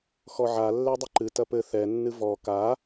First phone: x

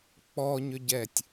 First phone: k͡p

